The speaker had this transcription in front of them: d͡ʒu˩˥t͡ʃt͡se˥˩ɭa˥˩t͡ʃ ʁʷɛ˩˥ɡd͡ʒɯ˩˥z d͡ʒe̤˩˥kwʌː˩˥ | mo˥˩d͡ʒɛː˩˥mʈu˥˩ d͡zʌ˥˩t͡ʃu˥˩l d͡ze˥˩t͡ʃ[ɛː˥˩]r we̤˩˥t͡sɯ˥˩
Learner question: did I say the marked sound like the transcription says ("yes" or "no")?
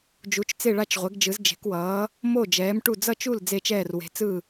yes